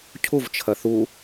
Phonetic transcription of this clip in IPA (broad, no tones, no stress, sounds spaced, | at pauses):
cʰ u v t͡ʃʰ ɐ θ u